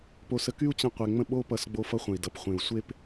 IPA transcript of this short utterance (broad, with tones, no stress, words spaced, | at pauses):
po˧sə˧ky˦u̯ t͡ɕə̃˦qʷe˧ŋ͡mə̃˦ ɓo˦pʌ˧s ɡ͡bo˧fʌ˧χʷə̃˨i̯dʌ˨p χʷẽ˨u̯sʷe˦p